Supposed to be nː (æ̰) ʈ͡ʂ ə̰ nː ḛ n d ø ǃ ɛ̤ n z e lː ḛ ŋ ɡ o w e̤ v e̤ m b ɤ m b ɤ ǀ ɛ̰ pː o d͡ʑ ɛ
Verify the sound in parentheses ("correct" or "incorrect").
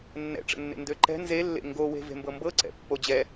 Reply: incorrect